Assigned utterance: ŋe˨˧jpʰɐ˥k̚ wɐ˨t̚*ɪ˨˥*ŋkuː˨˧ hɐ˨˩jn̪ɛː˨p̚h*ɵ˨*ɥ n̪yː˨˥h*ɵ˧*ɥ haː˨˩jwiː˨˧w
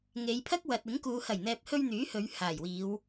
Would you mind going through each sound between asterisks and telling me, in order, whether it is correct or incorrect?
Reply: correct, incorrect: ɵ˧, incorrect: ɵ˨˧

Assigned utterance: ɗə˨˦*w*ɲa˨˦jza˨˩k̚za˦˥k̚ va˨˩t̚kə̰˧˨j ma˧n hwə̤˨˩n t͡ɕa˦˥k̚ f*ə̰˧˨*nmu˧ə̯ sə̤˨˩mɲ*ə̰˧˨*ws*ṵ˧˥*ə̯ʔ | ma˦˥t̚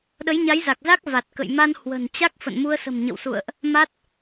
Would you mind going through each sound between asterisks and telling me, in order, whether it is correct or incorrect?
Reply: incorrect: j, correct, correct, incorrect: ṵ˧˨

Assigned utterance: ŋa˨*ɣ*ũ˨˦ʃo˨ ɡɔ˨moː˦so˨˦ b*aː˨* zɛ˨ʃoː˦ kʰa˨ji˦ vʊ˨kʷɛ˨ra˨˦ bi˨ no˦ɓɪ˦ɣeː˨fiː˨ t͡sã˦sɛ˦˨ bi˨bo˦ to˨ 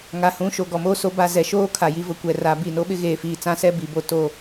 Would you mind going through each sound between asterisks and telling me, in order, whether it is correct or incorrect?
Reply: incorrect: h, incorrect: a˨

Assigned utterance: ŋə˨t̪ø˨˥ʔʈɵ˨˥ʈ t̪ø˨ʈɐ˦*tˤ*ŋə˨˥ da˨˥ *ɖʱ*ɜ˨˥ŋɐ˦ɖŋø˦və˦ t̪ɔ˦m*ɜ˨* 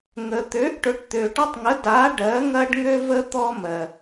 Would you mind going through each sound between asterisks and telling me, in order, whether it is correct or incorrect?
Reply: correct, incorrect: ɖ, correct

